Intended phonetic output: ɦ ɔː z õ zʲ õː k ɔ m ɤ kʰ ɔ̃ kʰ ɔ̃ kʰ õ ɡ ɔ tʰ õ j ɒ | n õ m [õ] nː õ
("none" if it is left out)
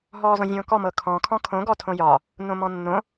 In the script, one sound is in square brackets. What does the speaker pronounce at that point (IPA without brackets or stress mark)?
ɔ̃